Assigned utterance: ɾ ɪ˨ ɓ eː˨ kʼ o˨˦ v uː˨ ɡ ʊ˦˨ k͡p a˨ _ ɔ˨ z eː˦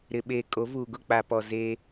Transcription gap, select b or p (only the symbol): p